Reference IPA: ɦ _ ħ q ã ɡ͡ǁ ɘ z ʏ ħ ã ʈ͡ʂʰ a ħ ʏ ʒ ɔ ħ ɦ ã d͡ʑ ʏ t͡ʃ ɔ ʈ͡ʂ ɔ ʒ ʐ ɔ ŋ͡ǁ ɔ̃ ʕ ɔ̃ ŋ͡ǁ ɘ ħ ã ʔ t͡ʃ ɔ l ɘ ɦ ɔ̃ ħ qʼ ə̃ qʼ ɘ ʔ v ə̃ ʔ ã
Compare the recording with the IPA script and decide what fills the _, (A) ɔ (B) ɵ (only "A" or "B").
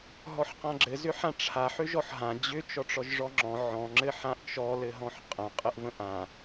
A